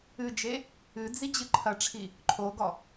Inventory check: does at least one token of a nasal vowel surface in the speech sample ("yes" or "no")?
no